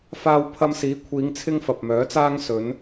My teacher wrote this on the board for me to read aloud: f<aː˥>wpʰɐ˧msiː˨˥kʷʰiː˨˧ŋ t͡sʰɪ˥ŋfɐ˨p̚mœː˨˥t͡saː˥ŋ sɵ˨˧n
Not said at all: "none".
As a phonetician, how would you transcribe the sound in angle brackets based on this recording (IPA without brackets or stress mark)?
aː˧